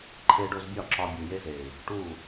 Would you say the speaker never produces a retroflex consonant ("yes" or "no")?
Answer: no